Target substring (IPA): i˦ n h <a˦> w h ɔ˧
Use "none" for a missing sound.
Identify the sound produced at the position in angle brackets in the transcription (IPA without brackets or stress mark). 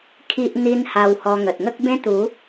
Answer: a˧